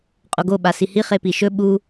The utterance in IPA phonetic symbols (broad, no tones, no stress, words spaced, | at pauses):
qʼoɡo ɓasihi χepiʃɵ ɓu